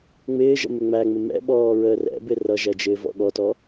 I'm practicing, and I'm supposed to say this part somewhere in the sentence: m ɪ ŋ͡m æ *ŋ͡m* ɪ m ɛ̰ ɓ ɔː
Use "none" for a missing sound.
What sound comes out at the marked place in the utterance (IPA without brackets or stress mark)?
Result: ŋ͡m